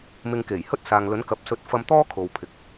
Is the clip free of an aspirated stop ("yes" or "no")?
no